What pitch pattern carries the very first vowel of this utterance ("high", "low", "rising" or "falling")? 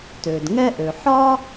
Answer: low